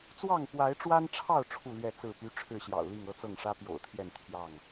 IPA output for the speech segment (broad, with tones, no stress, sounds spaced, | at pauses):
t͡s w ɑ˥˨ ŋ p w a˨˦ ɪ̯ ʈ͡ʂ w a˦ n ʈ͡ʂʰ ɑ˥˨ ʊ̯ ʈ͡ʂʰ u˥˨ l ɥ ɛ˥˨ t͡s ɹ̩˥˨ p y˦ ʈ͡ʂʰ ɻ̩˥˨ ɕ j ɑ̰˨˩ ʊ̯ l i˥˨ ŋ ɤ˦ t͡s ɤ˥˨ ŋ ʂ ä˦ p j o̰˨˩ ʊ̯ t̪ʰ j ɛ˥˨ n t̪ʰ j ɑ˥˨ ŋ